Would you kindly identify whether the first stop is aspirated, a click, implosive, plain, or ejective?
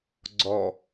click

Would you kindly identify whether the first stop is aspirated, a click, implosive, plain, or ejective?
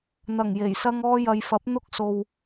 plain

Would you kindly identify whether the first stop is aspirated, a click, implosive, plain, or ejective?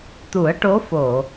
plain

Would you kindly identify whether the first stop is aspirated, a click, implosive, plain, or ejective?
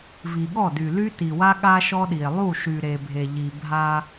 implosive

